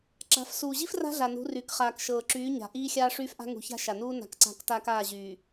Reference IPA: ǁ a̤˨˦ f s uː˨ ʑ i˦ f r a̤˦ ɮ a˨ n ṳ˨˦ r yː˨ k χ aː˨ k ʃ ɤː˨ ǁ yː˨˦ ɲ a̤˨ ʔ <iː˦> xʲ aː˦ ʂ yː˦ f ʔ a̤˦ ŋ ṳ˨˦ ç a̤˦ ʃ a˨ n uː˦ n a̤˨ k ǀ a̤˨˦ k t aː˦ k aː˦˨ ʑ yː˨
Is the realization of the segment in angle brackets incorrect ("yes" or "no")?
no